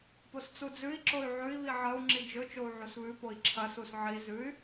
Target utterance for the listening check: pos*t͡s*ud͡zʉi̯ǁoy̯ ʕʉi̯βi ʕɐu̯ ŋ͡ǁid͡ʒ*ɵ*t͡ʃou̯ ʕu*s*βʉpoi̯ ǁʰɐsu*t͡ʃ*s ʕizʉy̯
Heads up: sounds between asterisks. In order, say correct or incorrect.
correct, correct, correct, incorrect

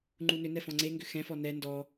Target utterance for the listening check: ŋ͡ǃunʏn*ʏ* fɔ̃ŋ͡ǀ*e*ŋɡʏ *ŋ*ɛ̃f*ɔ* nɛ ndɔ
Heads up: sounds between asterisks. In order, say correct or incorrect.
incorrect, correct, incorrect, correct

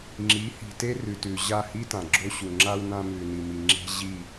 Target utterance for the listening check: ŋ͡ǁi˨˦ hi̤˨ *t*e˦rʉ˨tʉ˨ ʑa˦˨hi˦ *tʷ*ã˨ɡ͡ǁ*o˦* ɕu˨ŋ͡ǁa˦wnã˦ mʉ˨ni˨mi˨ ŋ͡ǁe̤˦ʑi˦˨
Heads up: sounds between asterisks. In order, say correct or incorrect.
correct, incorrect, correct

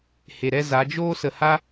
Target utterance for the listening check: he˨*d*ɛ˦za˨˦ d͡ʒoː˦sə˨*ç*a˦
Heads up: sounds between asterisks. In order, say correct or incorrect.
incorrect, incorrect

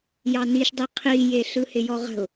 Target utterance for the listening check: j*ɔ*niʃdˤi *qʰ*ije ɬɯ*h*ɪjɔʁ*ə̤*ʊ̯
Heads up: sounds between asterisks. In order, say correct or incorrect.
incorrect, correct, correct, correct

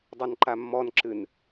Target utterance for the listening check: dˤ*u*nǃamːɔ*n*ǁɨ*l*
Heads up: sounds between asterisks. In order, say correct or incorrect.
correct, correct, incorrect

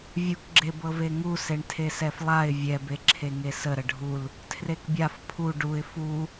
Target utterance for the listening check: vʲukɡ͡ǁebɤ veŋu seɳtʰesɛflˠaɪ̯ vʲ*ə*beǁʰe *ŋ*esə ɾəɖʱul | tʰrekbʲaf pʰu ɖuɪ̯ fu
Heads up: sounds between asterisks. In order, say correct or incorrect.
incorrect, correct

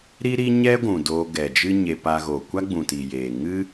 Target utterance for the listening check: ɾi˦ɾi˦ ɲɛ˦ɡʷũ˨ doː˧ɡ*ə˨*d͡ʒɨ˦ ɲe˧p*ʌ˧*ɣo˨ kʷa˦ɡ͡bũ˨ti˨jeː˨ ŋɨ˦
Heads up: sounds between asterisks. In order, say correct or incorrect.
incorrect, incorrect

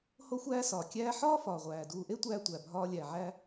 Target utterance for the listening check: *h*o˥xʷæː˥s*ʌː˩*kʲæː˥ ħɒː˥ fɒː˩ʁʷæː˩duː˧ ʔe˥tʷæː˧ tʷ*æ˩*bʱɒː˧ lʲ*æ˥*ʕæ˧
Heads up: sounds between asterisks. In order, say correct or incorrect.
correct, incorrect, correct, incorrect

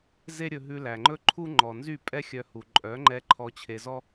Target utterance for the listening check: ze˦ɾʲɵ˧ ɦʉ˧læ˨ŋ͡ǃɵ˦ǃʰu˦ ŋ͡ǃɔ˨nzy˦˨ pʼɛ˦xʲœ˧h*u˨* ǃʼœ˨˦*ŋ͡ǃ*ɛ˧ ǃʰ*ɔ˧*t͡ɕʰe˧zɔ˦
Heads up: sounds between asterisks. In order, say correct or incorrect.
correct, correct, correct

